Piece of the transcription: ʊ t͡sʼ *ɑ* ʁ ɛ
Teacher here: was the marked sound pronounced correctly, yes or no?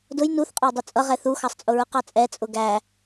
no